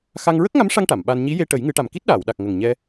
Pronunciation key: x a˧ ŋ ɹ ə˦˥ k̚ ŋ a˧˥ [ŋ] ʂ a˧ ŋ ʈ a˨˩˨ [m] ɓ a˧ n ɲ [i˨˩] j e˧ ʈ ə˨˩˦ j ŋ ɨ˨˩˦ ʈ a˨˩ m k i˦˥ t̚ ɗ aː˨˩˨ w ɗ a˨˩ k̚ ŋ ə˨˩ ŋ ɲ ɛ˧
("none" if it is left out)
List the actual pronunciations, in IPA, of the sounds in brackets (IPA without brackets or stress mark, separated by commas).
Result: m, m, i˧˥